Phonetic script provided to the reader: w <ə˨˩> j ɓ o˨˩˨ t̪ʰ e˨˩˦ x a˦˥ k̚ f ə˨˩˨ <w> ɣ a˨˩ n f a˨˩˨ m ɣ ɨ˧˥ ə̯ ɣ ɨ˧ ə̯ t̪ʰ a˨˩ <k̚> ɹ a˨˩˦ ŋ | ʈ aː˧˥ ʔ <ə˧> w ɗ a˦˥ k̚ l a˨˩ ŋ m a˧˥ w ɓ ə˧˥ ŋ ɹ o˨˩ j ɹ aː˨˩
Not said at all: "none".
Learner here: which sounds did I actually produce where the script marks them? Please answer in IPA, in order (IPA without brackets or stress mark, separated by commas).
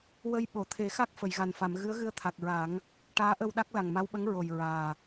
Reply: ə˧, j, k̚, ə˧